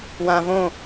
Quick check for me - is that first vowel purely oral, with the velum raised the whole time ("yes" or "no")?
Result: no